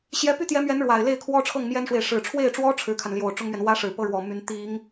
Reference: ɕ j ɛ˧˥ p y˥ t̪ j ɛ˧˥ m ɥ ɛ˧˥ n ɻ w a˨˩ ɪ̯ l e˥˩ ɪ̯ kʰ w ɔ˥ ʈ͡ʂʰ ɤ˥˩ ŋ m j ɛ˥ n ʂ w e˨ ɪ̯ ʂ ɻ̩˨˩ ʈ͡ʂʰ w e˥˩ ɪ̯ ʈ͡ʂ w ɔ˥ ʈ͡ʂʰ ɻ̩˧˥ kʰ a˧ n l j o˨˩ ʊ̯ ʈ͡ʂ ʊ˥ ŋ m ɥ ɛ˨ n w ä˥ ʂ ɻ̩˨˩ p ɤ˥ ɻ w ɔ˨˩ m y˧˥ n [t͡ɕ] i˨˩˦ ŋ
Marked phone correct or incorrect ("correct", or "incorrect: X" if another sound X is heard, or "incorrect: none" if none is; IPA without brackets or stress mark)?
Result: incorrect: t̪